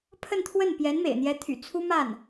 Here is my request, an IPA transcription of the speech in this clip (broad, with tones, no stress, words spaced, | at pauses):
pʰə˥˧nt̪ʰwə˥˩n pjɛ˧˥nmḛ˨˩ɪ̯n̪jɛ˧˥t̪ʰy̰˨˩ t͡sʰu˥ma˥˩n